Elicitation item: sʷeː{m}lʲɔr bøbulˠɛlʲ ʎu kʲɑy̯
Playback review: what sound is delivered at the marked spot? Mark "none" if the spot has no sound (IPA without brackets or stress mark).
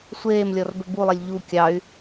m